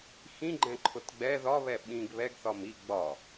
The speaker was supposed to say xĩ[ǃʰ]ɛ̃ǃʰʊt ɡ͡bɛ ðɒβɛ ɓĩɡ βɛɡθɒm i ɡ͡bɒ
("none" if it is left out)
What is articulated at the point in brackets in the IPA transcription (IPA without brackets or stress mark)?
ɡ͡ǃ